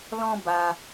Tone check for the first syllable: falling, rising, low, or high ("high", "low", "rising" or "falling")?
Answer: high